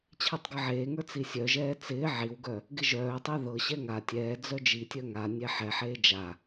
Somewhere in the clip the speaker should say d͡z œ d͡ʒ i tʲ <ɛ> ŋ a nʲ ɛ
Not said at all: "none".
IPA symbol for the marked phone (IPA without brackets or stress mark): œ